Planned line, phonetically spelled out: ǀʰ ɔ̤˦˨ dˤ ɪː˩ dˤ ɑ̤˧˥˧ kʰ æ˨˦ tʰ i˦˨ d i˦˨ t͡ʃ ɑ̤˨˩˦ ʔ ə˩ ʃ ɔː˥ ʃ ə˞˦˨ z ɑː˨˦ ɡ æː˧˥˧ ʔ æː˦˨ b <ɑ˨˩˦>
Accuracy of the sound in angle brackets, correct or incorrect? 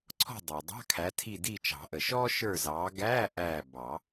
correct